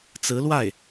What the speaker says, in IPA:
t͡sɹ̩˧˥lwa˥˩ɪ̯

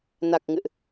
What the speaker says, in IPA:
na˨˩k̚ŋɨ̰˧˨ʔ

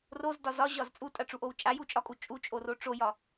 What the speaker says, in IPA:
rozdɒ zɒʑɒz t͡sʼutʼaʈ͡ʂuʔow t͡ʃʼajut͡ʃʼɒkʼu t͡ʃʼut͡ʃʼoro ʈ͡ʂojɒ

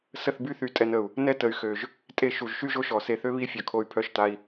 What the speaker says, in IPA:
sə˦˨θby˦ θy˧ tʼɛ˧nə˨u̯ | nɛ˦ tə˨y̯xø˨ʒ | tʼe˦˨ʃu˨ʒʃy˦ ʒo˦ʃɔ˨se˧θø˦ βi˦fʲœ˨kʰo˧y̯ pʰœ˧ʃta˧i̯

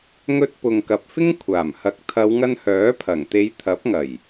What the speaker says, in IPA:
ŋɵ˧t̚pʊ˨ŋ kɐ˨p̚fɪ˥ŋkʷʰaː˨˩mhɐ˨˥k̚ t̪ʰɐ˨˧wŋɐ˧nhœː˨˥pʰɐ˨˩ŋ t̪e˨˧jt̪ʰɐ˨˥p̚ŋɐ˨˩j

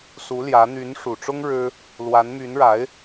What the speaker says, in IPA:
su˧˥ljä˧˥ n̪y˧˥nʂu˨˩ʈ͡ʂʊ˥ŋ ɻɻ̩˥ | lwa˧˥nmy˧˥nɻa˧˥ɪ̯

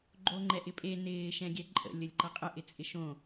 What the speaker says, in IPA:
ɡ͡ǃoŋ͡ǃɛʔɪpʼe nɪː ʃɛ̃ɡʲɛǃʼə̰ lʲəlʲǃʌqʼə ʔɪt͡sʼɪʃõ

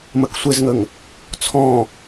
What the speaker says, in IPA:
məksʷezŋəŋ | t͡sʰɔ̃

